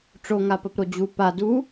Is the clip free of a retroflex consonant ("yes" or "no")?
no